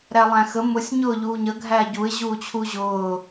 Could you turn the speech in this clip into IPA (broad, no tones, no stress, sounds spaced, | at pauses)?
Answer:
ɾ æ lˠ æ̃ x ə m ʊ sʲ ɲ ʊː ʎ uː ɲ ə ɡʱ æː ɟ u ɪ̯ ʑ uː t͡ɕʰ u ʑ ʊː